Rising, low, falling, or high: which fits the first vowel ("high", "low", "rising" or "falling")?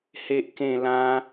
high